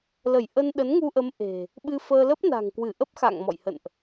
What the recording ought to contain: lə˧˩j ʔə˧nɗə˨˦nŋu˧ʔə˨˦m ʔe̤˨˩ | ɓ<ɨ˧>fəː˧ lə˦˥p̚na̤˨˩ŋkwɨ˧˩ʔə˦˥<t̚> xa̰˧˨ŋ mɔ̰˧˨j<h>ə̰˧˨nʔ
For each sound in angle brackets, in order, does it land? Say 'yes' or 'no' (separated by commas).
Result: yes, no, yes